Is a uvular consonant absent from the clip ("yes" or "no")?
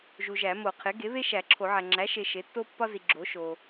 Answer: no